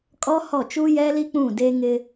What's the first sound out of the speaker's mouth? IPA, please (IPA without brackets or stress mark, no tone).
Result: kʼ